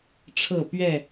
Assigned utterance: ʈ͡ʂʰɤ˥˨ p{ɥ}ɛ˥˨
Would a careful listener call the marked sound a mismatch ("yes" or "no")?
no